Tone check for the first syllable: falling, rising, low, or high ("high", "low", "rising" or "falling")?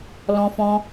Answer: high